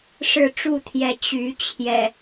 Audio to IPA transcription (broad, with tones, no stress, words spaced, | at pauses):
ʂɻ̩˥˨ʈ͡ʂu˥˨t̪ʰjɛ˨˦ t͡ɕy˨˦t͡ɕʰjɛ̰˨˩